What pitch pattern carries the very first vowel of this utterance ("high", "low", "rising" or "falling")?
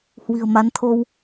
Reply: low